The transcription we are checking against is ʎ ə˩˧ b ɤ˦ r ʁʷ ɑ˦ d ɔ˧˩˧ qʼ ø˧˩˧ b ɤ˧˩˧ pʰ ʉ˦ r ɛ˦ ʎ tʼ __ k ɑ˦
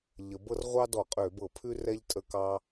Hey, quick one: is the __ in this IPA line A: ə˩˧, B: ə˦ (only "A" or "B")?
B